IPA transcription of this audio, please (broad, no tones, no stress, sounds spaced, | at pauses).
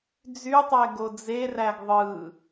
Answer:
d͡z y tˤ ɛ ɡ o d͡z e r æ ɡ ðˤ ɯ